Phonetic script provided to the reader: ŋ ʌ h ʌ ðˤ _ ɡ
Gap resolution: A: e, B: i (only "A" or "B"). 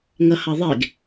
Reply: A